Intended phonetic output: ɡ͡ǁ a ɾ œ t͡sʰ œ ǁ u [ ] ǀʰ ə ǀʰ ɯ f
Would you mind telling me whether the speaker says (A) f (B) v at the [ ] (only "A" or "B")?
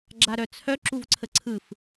B